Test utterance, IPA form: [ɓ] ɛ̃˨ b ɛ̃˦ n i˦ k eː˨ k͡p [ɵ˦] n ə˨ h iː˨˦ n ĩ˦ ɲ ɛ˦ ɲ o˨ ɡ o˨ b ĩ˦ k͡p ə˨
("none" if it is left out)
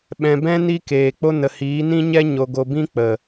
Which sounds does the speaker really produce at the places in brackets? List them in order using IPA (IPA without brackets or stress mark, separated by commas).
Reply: ɓ, o˦